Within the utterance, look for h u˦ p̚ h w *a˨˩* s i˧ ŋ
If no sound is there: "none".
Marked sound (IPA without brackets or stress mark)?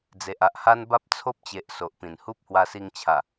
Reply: a˧